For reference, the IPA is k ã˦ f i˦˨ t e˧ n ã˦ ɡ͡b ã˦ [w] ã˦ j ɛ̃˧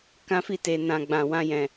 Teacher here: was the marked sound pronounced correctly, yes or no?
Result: yes